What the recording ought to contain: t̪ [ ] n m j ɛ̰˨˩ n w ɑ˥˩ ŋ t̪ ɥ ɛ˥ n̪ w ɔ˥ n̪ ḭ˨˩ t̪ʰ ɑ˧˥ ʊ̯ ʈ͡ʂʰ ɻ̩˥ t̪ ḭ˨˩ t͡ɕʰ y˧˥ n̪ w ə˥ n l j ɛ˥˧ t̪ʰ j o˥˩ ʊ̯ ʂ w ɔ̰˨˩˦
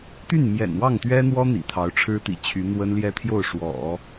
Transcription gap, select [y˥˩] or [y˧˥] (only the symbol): y˥˩